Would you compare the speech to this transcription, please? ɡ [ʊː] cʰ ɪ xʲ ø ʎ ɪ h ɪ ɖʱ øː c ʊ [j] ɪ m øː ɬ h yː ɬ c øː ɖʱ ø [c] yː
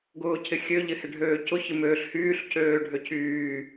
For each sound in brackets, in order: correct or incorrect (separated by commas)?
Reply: correct, incorrect, correct